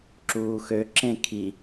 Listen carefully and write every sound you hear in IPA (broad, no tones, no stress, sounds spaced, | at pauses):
ǁ uː x ø ǁ ẽ kʰ i